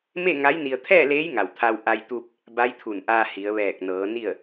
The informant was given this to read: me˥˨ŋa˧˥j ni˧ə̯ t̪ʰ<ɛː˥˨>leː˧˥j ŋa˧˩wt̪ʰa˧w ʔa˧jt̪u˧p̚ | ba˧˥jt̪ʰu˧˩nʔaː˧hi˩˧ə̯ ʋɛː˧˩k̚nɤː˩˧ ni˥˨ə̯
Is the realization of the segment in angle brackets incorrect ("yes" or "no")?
no